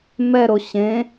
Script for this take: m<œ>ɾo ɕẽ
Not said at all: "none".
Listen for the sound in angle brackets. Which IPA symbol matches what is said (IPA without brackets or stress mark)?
ɛ